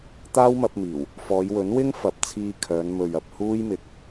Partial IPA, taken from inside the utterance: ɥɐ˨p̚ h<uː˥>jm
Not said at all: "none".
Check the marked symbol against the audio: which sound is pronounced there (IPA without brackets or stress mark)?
uː˥